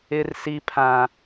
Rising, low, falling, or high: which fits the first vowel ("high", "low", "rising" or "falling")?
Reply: high